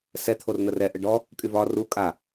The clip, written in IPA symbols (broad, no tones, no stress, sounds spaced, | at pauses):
s ɛ t̪ʰ o r n̪ ə r ɛ ʔ ə ɖ ɔ | kʼ y v ɒ r u kʼ a